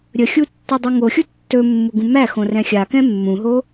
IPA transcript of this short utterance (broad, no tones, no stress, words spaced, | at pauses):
ɾʲəxʲu tːadˤɵŋoxʲu tːɵmːu ɡũmæxõ rɛ̃xʲa kɛ̃mːũɦo